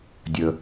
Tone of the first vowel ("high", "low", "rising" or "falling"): low